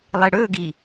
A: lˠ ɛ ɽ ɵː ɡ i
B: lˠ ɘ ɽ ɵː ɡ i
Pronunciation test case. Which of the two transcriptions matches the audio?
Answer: A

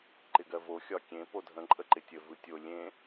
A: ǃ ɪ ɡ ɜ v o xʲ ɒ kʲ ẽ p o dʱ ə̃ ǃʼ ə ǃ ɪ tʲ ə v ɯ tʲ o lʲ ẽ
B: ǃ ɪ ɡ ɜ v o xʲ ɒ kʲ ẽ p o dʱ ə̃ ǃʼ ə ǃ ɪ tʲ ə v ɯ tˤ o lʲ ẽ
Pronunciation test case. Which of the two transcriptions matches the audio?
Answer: A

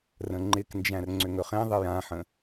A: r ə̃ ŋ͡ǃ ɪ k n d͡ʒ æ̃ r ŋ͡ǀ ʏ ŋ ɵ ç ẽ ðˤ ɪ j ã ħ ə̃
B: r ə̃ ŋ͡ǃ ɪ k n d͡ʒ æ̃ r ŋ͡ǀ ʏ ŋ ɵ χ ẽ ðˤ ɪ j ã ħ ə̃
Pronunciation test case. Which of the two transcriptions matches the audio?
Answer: B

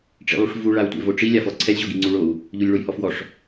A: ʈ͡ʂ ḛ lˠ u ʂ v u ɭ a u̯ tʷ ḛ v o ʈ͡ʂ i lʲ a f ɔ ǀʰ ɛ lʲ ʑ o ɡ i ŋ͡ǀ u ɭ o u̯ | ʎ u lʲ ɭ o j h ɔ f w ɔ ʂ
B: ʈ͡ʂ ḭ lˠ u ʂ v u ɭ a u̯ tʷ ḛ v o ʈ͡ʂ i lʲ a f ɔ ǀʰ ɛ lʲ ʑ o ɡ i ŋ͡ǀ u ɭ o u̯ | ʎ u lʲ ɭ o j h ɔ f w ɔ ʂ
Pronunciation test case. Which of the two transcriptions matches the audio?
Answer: B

